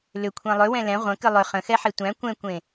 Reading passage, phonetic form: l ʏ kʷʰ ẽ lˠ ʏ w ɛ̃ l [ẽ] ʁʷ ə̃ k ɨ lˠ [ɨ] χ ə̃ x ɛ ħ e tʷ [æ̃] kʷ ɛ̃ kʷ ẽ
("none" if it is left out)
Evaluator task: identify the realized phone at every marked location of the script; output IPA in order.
ɛ̃, ʏ, æ̃

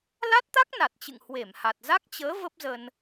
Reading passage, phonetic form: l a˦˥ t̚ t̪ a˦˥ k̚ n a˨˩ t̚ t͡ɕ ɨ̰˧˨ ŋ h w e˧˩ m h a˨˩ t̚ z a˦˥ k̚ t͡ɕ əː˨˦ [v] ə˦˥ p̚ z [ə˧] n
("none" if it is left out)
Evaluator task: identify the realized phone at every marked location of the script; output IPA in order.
v, ə˧

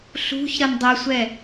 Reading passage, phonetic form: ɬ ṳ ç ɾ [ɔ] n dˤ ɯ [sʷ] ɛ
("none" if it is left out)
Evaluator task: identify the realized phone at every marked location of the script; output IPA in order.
ʌ, sʷ

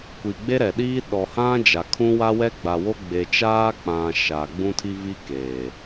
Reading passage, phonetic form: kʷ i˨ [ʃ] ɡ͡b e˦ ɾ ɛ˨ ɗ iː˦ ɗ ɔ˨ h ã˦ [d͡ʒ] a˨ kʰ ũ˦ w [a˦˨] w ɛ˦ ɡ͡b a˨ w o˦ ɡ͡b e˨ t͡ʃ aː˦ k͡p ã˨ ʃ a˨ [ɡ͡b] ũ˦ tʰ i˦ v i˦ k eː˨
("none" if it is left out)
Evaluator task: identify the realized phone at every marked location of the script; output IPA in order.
none, d͡ʒ, a˦, ɡ͡b

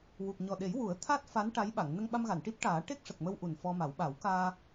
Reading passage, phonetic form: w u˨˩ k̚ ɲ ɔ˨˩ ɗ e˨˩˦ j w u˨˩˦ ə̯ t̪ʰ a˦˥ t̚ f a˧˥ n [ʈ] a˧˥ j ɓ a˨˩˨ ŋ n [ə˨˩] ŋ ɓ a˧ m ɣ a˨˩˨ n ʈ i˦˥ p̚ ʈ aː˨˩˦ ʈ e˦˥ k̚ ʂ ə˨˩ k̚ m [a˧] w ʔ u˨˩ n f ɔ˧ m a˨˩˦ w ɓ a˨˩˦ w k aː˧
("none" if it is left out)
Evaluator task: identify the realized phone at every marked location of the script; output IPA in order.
ʈ, ə˧, ə˧

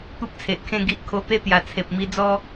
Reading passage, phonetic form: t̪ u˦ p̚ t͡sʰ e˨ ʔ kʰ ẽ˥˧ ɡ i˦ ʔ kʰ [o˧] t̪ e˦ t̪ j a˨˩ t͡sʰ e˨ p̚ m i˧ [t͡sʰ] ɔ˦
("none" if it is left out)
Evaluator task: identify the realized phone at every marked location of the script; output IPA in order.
o˧, d͡z

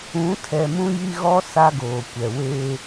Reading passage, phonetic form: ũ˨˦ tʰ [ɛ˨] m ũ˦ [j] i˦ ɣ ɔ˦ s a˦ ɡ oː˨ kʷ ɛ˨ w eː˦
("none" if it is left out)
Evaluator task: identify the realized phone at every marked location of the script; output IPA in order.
ɛ˨, j

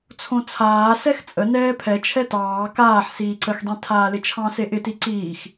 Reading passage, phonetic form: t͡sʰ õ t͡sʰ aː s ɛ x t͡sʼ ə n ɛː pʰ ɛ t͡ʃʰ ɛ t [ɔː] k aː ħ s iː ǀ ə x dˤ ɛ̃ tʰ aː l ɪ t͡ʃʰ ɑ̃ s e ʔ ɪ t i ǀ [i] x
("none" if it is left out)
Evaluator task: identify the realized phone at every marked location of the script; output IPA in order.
ɑː, iː

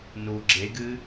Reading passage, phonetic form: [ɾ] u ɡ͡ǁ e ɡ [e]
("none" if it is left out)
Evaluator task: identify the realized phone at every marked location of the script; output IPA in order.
n, ɨ

